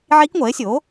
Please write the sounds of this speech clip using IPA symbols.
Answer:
ʕi˦˥kŋʷɛ˩˥e̯sʲo˩˥

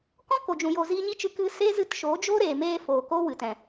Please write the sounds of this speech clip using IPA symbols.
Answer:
kɔ̃˦ko˨d͡ʒũ˨ jo˨ ziː˧ɲi˦t͡ʃɨ˧ kɨ˧ seː˦ zɨ˦t ʃo˨˦d͡ʒo˦ ɾeː˨meː˧foː˨ ko˦ wɨ˨ tɛ̃˨

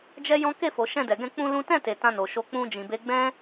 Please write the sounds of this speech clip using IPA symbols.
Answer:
d͡ʒɛ˦ jɔ̃˦ ke˦˨fo˨ ʃɛ̃˧dɛ˨ɡɛ̃˧ k͡pũ˦lũ˦ tɛ̃˦˨te˨ tã˧no˨ʃo˧ k͡pũ˦d͡ʒĩ˧be˦ ɡ͡bɛ̃˦

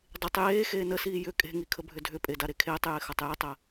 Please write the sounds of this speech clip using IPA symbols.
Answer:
dˤɪtˤ jeː xeːnəsiː jʏ kʼe̤ŋi kʰəbʱʏdʱʏpʼe daɾekʰeːtˤjɪː xɐtˤjʏtˤə

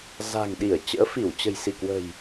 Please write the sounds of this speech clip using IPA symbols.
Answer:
za̤˨˩ŋɗi˧˩ə̯t͡ɕə̰ː˧˥fi˧˩w t͡ɕə̤˨˩jsi˧˩kwə̤˨˩j

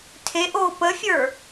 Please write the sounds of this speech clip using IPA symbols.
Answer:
tʰeʔoː pəfʲə˞

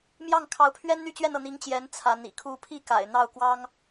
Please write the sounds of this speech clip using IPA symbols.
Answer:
mjɑ˥˩ŋkʰɑ˧˥ʊ̯pʰɥɛ˥n n̪y˥˧t͡ɕɥɛ˥˧nɤ˥˩n̪i˧˥ŋ t͡ɕjɛ˧˥n t͡sʰa˧˥n ḭ˨˩kʰu˧˥pʰi˥˩ ka̰˨˩ɪ̯n̪ɑ˥˩ʊ̯kwɑ˥ŋ

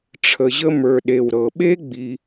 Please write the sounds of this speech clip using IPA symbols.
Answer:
ʈ͡ʂʰə˨ʑə˦mə˞˨ ɗe˩wɾɤ˩ɓe˥ ɡ͡bi˨

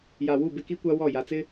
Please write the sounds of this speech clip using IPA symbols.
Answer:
ja˨wu˦˨ bɪ˦ki˦kʷa˦ wɔ˦˨ ja˨t͡sɪ˦

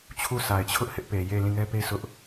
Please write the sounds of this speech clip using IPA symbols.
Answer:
t͡ɕʰu˦˨sa˨ɪ̯t͡ɕʰʊ˦ʔ hɪ˦ʔpe˨ je˦˨ lĩ˦˨ŋɛ˦pe˦ sʊ˦ʔ

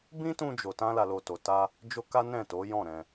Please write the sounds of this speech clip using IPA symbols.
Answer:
bĩ˦tũ˧d͡ʒo˨ tã˧la˨lo˨to˨ ta˧ | d͡ʒo˦ka˦ nɛ̃˦˨to˨˦jɔ̃˦˨ɾɛ̃˧

